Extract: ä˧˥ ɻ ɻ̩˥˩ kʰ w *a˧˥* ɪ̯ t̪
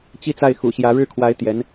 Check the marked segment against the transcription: correct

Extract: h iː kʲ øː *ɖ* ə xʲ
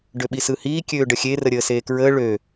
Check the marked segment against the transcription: correct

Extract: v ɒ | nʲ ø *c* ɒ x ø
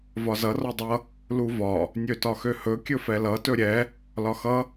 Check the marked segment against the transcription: incorrect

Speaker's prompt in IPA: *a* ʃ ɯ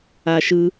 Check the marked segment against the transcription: correct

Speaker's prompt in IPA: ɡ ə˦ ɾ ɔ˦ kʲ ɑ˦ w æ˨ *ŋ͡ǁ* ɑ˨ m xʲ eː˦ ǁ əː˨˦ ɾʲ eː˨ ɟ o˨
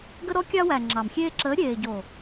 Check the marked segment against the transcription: correct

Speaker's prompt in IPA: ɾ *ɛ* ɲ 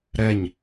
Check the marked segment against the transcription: correct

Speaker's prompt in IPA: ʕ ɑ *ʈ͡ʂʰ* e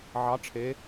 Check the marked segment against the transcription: correct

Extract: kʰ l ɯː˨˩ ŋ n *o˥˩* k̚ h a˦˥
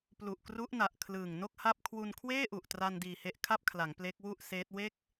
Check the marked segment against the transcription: correct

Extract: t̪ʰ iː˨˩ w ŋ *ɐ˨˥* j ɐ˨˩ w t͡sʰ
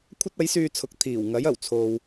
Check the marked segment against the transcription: correct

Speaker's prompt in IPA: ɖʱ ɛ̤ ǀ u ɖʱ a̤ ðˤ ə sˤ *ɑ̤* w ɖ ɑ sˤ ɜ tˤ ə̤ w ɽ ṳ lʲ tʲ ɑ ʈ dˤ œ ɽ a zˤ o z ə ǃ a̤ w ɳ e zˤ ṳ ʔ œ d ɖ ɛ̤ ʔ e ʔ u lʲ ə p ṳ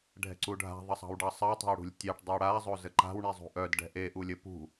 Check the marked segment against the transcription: correct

